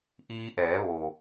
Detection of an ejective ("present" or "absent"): absent